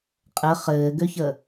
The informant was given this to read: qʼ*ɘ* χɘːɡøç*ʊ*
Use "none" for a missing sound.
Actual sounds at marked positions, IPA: ɘ, ə

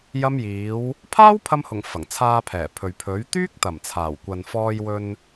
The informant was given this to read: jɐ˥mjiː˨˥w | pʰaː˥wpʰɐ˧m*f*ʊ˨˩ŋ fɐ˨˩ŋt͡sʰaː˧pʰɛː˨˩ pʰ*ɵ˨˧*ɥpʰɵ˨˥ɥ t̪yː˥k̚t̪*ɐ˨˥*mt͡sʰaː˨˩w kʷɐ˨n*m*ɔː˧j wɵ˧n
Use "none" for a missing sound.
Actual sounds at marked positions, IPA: h, ɵ˨, ɐ˨˩, f

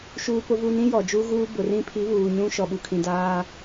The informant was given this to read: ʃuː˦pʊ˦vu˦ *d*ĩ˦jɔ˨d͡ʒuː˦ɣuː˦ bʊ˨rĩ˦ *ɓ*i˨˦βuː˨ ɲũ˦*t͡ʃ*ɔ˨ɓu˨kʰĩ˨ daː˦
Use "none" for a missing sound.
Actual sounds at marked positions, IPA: n, pʰ, ʃ

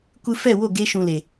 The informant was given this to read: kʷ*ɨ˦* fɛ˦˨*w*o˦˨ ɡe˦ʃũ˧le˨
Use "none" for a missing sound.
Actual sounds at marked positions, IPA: ɨ˦, w

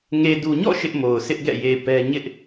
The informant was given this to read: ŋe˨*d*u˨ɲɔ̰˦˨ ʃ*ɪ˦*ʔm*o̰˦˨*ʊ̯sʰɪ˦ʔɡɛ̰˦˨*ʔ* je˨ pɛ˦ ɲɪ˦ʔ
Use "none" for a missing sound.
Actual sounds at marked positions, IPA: d, ɪ˦, o˨, none

